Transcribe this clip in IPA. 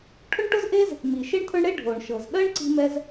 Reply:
ʈʰʊ˥ɳʈʊ˥zʔe˥z | mi˩ʃe˥ɳt̪ʰʊ˥ɳɽe˥ ɖʱo˩ɳʃɤ˩zɗɜ˥ɳ ǀi̤˥ mɛ˥z

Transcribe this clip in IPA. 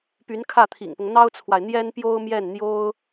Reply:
py˧˥nkʰä˥˩t̪ʰḭ˨˩ŋpʊ˦ŋ n̪ɑ˥ʊ̯t͡sʰwa˨ɪ̯n̪jɛ˥npjo˥ʊ̯ mjɛ˥˩nn̪jo˥ʊ̯

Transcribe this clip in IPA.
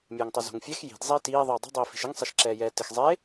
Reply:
mʲɛːŋtˤozo̤ŋfʲɛx ji̤d zˤiːtiː ðˤiːdˤi̤ dˤiːfi̤ʃɪŋ sˤɛʃǁɛːjɛːtɪx zˤe

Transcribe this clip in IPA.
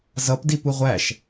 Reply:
zʌp dipuʁʷæʃ

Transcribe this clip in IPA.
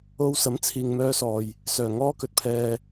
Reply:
o˥w sɐ˨˥mt͡sʰiː˨ŋmœː˧sɔː˨j | sœː˨˩ŋɔː˥kɵ˨t̚pʰɛː˧

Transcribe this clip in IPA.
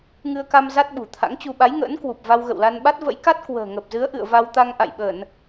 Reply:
ŋɨ˧ə̯ka˧m za˦˥t̚ɓṳ˨˩t̪ʰa̰˧˥ŋt͡ɕu˧ ɓa˨˦jŋə̰ː˧˥nkwu˨˩p̚ va˧wɣə̰˧˨wla˧nɓa˦˥t̚ və̰˧˥jka˦˥t̚ kwə̤ː˨˩ŋə˨˩p̚zɨ˨˦ə̯ʔɨ̰˧˨ə̯ va˧wt̪a˧ŋ ʔa̰˧˨jɓə˧˩˨n

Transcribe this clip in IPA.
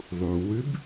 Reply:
ðˤuwʉb

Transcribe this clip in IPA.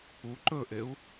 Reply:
u ǃɵʔeu̯

